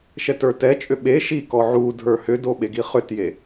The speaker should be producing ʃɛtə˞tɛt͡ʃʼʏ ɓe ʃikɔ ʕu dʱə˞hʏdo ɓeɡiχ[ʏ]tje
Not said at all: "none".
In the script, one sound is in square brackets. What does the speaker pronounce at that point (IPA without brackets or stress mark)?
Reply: ʏ